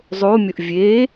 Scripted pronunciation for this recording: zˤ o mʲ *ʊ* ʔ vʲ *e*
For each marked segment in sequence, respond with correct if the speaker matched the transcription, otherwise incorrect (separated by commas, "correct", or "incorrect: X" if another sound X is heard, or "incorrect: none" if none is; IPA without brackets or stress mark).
correct, correct